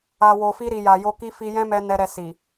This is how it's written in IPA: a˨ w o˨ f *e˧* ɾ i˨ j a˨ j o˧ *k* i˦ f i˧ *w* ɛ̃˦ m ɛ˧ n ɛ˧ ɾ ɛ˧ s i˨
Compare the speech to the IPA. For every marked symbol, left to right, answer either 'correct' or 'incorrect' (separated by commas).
incorrect, correct, incorrect